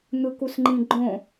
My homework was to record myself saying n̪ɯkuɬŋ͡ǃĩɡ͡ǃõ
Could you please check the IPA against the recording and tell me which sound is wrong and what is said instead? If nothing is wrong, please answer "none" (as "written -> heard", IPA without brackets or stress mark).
ɬ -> s